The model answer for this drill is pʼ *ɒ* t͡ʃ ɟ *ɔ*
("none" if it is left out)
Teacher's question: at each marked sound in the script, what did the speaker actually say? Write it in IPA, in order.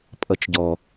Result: ʌ, ɔ

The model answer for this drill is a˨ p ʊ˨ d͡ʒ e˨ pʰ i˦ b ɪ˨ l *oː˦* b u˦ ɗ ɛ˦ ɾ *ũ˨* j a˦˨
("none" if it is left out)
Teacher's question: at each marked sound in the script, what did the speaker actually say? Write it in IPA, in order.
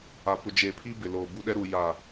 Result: oː˨, u˨

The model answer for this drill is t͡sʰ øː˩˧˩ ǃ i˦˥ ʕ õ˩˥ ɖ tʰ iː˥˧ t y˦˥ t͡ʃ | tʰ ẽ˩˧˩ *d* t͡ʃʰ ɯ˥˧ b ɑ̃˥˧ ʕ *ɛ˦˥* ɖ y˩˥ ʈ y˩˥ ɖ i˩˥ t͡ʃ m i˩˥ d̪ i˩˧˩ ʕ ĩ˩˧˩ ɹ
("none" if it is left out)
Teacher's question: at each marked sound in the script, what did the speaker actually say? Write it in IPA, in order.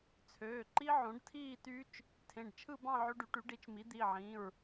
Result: ɖ, ø˦˥

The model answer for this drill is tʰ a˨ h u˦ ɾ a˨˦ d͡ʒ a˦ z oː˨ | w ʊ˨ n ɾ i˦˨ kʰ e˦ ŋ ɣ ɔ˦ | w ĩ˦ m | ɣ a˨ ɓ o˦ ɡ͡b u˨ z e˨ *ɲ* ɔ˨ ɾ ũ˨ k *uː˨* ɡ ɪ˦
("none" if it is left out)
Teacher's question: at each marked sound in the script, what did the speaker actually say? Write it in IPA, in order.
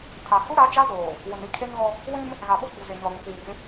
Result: ɲ, uː˨

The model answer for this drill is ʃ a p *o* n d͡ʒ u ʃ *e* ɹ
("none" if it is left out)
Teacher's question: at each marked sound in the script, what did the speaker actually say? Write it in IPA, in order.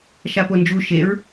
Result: o, e

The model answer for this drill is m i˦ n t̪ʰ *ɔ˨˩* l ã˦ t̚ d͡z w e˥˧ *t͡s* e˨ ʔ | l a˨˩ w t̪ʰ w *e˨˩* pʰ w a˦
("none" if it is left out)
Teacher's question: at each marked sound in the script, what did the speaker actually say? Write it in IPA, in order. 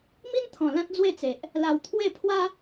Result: ɔ̃˨˩, t͡s, e˥˧

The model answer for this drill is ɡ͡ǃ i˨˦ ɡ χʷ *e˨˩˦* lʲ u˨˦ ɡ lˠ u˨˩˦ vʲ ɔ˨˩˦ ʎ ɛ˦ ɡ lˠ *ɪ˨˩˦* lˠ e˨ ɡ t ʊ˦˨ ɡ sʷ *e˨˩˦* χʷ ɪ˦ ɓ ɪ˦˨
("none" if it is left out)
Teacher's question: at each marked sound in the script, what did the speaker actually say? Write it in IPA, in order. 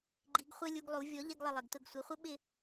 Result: e˦, ɪ˦˨, e˨˦

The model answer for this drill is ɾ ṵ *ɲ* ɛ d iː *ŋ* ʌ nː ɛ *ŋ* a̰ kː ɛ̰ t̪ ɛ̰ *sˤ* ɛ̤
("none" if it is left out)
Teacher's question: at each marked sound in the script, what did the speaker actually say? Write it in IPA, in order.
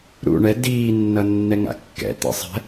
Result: ɳ, nː, ŋ, sˤ

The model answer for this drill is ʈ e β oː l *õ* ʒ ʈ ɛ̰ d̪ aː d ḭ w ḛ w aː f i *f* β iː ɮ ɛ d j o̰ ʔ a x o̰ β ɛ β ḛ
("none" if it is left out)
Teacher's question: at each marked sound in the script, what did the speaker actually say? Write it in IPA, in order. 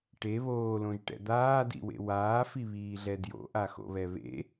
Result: õ, none

